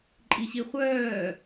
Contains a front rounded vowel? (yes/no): yes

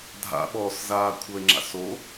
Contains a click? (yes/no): yes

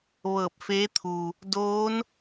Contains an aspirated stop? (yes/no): yes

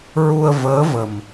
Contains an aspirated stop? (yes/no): no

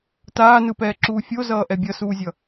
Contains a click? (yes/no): yes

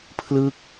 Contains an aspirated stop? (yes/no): yes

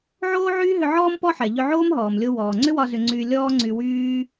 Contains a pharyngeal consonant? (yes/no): yes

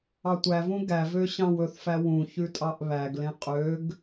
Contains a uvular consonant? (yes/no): yes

